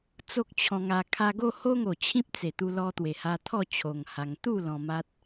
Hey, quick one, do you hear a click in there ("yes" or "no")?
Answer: no